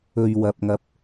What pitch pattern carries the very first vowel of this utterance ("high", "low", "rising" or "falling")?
low